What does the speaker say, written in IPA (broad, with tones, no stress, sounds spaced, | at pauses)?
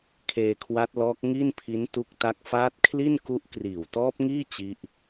kʰ eː˧ kʰ w a˦˥ t̚ l ɔː˦˥ k̚ ŋ i˥˩ n pʰ i˦˥ n t u˦˥ k̚ t a˦˥ k̚ f aː˦˥ t̚ kʰ l i˥˩ n k u˦˥ ʔ k r iː˨˩ w t ɔː˦˥ p̚ ŋ iː˥˩ t͡ɕ i˦˥ ʔ